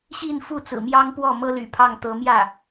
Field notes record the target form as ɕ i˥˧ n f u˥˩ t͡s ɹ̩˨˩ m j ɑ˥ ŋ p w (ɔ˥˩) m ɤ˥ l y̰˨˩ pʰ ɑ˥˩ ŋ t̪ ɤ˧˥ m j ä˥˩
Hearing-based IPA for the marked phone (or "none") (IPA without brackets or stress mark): ɔ˥˩